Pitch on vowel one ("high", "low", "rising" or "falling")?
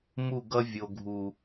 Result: falling